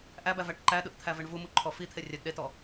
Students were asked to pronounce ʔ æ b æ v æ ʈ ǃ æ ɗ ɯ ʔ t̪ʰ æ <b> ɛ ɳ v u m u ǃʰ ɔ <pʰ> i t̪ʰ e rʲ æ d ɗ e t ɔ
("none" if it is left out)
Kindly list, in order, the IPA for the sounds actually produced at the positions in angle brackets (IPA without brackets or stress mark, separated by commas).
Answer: v, f